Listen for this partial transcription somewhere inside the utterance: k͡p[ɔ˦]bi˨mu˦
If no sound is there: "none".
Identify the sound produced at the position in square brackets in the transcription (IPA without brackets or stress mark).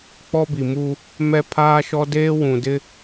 ɔ˦